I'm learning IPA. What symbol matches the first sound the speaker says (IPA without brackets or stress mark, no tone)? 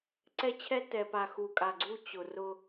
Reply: ǀ